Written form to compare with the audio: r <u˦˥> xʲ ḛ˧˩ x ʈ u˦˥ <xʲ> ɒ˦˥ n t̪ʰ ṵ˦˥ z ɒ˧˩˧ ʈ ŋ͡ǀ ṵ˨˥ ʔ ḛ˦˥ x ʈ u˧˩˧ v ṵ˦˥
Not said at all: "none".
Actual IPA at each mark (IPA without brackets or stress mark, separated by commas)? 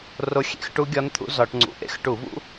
o˦˥, ɡʲ